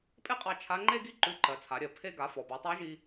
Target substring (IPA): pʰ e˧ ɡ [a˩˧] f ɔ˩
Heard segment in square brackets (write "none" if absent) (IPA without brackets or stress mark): a˩˧